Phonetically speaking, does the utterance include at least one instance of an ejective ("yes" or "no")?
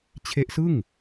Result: no